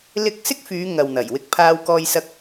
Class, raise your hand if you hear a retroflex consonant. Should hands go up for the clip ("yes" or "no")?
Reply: no